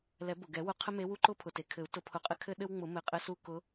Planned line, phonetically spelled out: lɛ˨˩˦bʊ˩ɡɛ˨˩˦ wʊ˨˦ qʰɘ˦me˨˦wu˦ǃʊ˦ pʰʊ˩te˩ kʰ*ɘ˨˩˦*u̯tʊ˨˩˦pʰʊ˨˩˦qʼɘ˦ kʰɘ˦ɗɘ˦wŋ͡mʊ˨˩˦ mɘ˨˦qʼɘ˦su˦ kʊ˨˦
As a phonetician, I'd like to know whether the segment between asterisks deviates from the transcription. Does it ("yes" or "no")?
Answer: no